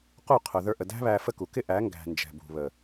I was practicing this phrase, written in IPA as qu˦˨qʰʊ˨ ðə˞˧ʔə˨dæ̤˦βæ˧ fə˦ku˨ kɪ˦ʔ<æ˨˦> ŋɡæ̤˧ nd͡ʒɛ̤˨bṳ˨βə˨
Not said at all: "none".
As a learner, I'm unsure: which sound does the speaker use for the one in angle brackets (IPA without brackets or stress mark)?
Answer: æ˨˦